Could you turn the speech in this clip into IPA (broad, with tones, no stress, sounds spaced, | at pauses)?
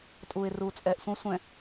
tʼ uː˨ ɪ̯ r uː˨ t͡sʼ ɛː˨ ʔ sʷ ə̃˦ ʊ̯ sʷ ɛ̃˨